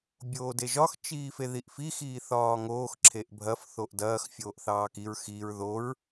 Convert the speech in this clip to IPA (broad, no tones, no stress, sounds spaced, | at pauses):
bʲ oː d e ʒ ɒ x t͡ʃ iː f e ð i ʔ f i x iː θ ɒː ŋ oː x ǁʰ e ʔ bʱ ɐ f θ o ʔ d ɐː x fʲ oː ʔ θ ɑː k i ɹ x i ɹ ð o ɹ